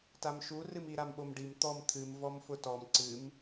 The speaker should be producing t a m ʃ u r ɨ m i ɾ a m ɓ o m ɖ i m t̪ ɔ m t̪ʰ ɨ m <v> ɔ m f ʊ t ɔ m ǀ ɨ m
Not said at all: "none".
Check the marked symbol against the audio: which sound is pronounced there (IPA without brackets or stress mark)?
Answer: v